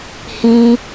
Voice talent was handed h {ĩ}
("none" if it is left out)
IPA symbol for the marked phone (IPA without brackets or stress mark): ĩ